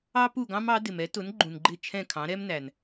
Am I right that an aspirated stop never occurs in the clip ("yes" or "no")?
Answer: no